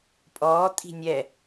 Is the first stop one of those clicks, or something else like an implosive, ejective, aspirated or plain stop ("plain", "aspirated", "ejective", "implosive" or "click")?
ejective